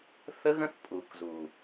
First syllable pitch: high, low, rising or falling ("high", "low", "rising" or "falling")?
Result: high